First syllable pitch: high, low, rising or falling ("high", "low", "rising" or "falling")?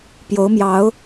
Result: rising